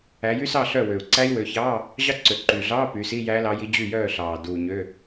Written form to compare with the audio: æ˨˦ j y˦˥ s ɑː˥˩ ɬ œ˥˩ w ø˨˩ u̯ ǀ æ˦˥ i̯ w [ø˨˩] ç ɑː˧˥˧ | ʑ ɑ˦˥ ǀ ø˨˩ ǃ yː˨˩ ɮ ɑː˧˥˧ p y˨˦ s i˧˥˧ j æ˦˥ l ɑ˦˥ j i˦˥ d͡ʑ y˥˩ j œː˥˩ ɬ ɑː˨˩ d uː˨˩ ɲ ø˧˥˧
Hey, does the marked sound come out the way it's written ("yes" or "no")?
no